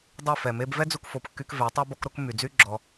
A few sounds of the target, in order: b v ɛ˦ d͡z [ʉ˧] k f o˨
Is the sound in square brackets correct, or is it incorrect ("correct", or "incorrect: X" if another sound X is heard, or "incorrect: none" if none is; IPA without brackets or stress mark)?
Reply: incorrect: u˧